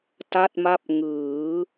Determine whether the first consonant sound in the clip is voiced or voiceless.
voiceless